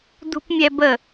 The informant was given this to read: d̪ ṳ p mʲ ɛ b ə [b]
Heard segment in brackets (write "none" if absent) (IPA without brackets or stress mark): none